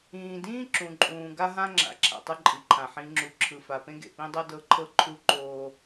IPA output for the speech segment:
ĩː˨ d ĩː˦ ǁ ũ˨ ǃʼ ũː˨ ɡ a˦ ɦ ã˦ ŋ͡ǁ a̰˨ ǁʰ a̰˨ tˤ ɯ˦ ǃʼ i˨ ǃʰ ã˨ ħ ĩ˨ ŋ͡ǁ u˨ ǁʰ ɯ˨ f a˨ p ẽ˦ ɡ ḛ˨ p ĩ˦ dˤ ɤ˦ d ɤ˦ ǃʰ ɤ˦ ǃʰ u˦ ǃ oː˦

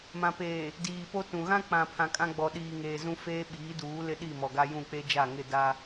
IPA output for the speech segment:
m ã˨ p eː˨ | d iː˨ p o˦ t ũ˨ ɣ ã˦ k͡p ã˨ pʰ ã˨ kʼ ã˦ ɡ͡b ɔ˨ ɗ iː˨ ŋ eː˨ z ũ˦ f eː˦ ɓ iː˨˦ d uː˨˦ l ɪ˦ ɗ i˦˨ m ɔ˨ ɡ a˦ j ũ˦˨ k͡p e˦ d͡ʒ a˦˨ ŋ ɪ˦˨ d a˦

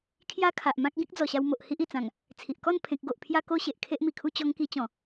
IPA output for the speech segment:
kʰ j a˦ kʰ a˨ ʔ m ã˦ k̚ ɡ ĩ˦ k̚ d͡z ɔ˨˩ ɕ a˧ w m o˨ ʔ h i˦ ʔ i˨˩ t͡s ã˨˩ ŋ | t͡sʰ i˨ ʔ k ɔ˥˧ n pʰ ẽ˨ k̚ ɡ o˨ ʔ pʰ j a˧ k o˧ ɕ e˨ ʔ kʰ e˦ ʔ m i˨˩ kʰ u˥˧ t͡ɕ ɔ˦ ŋ k i˧ t͡ɕ ɔ̃˨˩

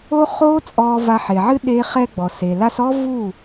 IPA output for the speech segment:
o˦ χ oː˦ t͡sʼ ɔː˧ v a˧ ħ e˨ ʕ ɨ˦ ɗ eː˧ χ ɛ˧ ɡ͡b ɔ˨ s e˨ l a˦ s ɔ˦ v u˦˨

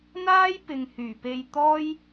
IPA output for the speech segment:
n̪ aː˥ j p ɪ˨ ŋ h yː˨˩ p e˧ j t̪ ɔː˥ j

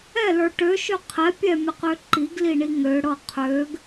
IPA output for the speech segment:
ɛ l ə˞ ʈ ø ʃ ø qʰ ɛ pʲ ɛ mʲ ə q ø ǃ i ɡ l i ɳ i ŋ ø ɽ ɤ qʰ ø ɡ

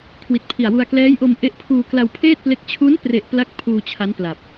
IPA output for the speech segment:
kʰ w i˨˩ t̚ pʰ i˨˩ a̯ w u˧ a̯ k l ɛː˦˥ j ʔ o˧ m ʔ e˦˥ ʔ pʰ uː˧ k l a˧ w pʰ eː˥˩ t̚ p l e˦˥ k̚ t͡ɕʰ u˦˥ n p r e˨˩ ʔ p l a˥˩ k̚ pʰ uː˧ t͡ɕʰ a˦˥ n p l a˨˩ p̚

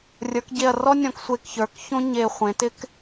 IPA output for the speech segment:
rʲ ə˞˩˧ k ɟ e˧˩ ɐ̯ r ɔ˥ nʲ ɔ̃˧˩ k sʷ e˧˩ k ç ə˞˩˧ k ç õ˥ ɲ e˧˩ χʷ ẽ˩˧ t ɪ˥ k

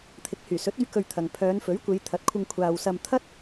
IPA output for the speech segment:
t̪ʰ ɪ˨˥ k̚ h yː˨˩ s ɵ˨˥ t̚ ɵ˧ ɥ k ɵ˧ ɥ t̪ʰ ɐ˨ ŋ pʰ œː˨˧ n f ɵ˨˥ ɥ kʷ e˨˧ j t̪ʰ ɐ˨˥ t̚ kʷʰ ɪ˧ ŋ kʷʰ aː˨ w s ɐ˧ m t̪ʰ ɐ˥ t̚

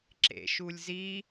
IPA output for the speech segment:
ǁ ḛ ʃ u lʲ z i

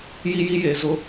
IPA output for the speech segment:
j i˦ j i˦ j e˨ z ʊ˦

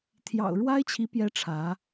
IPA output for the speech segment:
t̪ʰ j ɑ̰˨˩ ʊ̯ ɻ w a˥ ɪ̯ t͡ɕʰ i˧˥ p j ɛ˧˥ ʈ͡ʂʰ ä˧˥

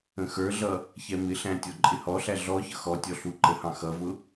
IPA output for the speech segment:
ə̃ x ə˞ ɮ ʌ | ç ɛ m ɪ ɬ æ̃ tʲ ɔ ǃʼ ɪ h ɔ ɬ æ ɮ ɔ ç ʌ x ɔ tʲ ɔ ɬ u ǃ ə h ɑ̃ x ʌ v ʊ

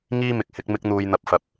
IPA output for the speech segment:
ŋ iː˥ m ɪ˨ k̚ h ɪ˨˥ k̚ m ɪ˥ k̚ n̪ uː˧ j n̪ ɐ˧ p̚ f ɐ˨ p̚

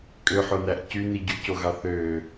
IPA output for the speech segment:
kʼ ø ħ o n æ ʔ c y n i ɟ y c o ɣ ɑ θ ø

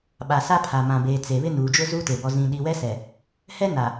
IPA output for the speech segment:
ɓ a˨ s a˦ pʰ a˨ m ã˨ b eː˨ t͡s e˨ β ɪ˦ n uː˨ d͡ʒ ʊ˦ z u˦ t e˨ b ɔ˦ z ĩ˦ ɗ i˦ w ɛ˦ s ɛ˨ | h ɛ˦ n a˨

